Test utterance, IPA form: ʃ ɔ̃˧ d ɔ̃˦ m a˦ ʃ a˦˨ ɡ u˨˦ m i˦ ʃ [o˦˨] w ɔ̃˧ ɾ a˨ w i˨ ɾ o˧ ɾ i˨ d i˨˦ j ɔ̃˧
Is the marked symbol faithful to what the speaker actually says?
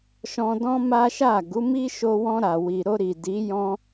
no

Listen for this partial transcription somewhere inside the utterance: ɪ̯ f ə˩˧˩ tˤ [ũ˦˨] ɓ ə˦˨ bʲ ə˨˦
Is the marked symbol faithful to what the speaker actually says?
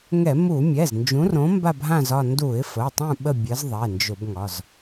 yes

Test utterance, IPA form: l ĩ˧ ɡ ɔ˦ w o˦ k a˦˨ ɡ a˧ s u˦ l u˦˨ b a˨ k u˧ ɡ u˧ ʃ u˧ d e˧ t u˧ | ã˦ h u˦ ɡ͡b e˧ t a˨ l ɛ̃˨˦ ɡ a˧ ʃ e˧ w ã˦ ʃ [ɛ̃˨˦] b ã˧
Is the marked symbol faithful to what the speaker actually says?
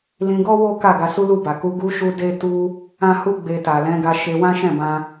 no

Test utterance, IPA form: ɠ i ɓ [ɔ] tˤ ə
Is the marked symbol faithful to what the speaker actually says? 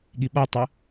yes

